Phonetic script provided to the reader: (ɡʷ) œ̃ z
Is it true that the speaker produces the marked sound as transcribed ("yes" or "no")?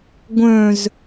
yes